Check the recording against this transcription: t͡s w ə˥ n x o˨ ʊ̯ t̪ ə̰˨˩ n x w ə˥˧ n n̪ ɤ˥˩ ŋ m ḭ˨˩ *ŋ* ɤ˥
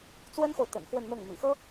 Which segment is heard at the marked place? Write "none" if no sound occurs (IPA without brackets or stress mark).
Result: x